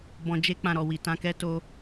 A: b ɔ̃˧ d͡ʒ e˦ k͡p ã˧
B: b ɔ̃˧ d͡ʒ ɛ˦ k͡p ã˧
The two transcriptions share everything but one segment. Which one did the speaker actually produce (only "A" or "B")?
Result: A